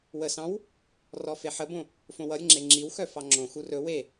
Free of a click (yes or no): no